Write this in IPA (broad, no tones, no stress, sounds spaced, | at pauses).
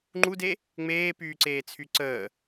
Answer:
ŋ͡ǃ u d e | ŋ͡m eː p yː ǀ eː t͡sʰ y ǀ əː